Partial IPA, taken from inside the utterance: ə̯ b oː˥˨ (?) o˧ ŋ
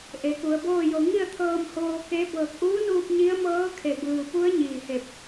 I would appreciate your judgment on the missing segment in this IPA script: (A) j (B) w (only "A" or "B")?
A